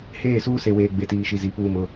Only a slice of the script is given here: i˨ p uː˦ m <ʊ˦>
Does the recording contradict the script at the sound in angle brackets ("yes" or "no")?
no